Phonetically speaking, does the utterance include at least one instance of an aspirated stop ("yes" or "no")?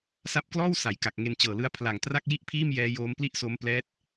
yes